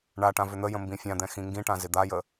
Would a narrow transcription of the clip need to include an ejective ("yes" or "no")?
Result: no